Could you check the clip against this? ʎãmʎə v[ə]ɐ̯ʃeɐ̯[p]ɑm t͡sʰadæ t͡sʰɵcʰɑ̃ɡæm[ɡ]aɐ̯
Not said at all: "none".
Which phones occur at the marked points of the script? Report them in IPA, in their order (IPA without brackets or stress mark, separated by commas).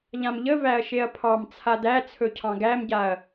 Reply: æ, pʰ, ɟ